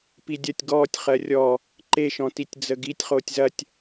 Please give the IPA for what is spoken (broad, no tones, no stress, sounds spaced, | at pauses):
p i dʲ ɐ tʲ ɡ ɔː tʲ χ ɜ rʲ ɔ | ǃ e ʃ ɔ̃ t i tʲ d͡z ə ɡ i tʲ χ oː tʲ z ɐ tʲ